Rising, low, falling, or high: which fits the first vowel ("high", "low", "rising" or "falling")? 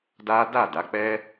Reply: high